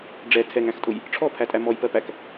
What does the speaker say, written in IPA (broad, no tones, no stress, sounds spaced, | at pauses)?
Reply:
ɖ͡ʐ ɛ tʰ ɛ ŋ æ̃ x tʼ ʊ j | ʈ͡ʂʰ ɔ pʰ æ tʼ æ m ɔ j p ɜ p æ k